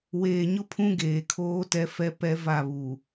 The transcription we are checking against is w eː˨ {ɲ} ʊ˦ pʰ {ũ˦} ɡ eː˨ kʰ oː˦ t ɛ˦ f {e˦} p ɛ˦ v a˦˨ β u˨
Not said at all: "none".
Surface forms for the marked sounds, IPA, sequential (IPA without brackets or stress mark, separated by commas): ɲ, ũ˦, ɛ˦